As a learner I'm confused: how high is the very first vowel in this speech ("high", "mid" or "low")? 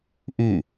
high